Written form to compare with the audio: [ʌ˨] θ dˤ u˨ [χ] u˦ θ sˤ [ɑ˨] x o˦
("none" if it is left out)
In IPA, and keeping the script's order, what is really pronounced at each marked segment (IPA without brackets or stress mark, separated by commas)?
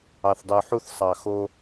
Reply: ɑ˨, ħ, ɑ˨